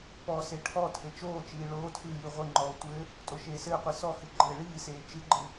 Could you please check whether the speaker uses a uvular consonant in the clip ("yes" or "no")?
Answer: yes